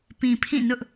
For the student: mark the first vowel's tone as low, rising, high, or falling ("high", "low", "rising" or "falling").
low